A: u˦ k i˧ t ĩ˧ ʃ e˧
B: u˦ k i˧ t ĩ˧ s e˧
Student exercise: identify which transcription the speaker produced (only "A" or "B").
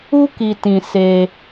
B